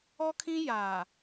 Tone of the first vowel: high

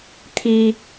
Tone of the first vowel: high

